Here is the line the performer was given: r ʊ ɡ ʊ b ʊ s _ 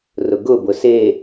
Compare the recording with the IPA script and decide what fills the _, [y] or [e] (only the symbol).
e